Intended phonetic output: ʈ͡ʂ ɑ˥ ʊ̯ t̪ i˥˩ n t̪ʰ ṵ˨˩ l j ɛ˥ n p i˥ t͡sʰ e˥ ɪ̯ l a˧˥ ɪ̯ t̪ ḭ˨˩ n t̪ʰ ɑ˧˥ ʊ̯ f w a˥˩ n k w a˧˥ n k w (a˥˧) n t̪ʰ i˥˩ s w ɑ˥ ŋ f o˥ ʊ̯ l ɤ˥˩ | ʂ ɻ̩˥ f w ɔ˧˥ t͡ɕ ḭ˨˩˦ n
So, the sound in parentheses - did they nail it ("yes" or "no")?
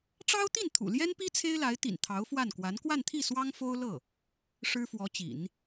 yes